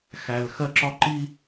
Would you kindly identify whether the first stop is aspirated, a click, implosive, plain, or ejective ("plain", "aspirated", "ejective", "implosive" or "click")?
click